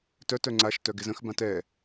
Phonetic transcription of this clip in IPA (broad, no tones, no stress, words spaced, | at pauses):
tœt œŋ͡ǀaʃ tœɡezə̃x bãtɛ